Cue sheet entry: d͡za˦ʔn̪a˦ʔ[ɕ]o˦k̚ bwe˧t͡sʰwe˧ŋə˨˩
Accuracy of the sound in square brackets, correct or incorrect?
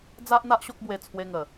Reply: correct